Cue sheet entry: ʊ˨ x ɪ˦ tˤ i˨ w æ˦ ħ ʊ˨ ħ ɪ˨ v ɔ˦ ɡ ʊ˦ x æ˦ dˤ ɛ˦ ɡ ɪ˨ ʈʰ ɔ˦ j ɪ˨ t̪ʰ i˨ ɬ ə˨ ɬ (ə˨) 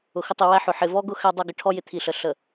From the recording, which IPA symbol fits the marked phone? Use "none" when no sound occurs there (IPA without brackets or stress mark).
ə˨